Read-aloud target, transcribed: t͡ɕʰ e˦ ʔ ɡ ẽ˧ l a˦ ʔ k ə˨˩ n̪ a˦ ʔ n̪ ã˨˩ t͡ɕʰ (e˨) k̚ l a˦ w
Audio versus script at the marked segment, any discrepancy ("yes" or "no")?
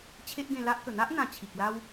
yes